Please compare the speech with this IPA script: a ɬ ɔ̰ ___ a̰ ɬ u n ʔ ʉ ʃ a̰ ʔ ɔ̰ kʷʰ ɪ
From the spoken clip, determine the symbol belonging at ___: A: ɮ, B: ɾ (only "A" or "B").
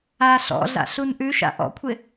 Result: A